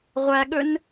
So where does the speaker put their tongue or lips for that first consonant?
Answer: uvula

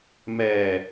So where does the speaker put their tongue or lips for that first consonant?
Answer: lips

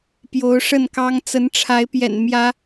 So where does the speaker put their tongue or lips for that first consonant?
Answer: lips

